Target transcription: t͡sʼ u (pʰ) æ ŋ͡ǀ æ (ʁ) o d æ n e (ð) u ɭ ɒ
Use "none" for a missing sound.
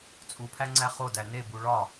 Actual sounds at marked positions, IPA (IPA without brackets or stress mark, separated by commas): pʰ, χ, b